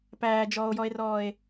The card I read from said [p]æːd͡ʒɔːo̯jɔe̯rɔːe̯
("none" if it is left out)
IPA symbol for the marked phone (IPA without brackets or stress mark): p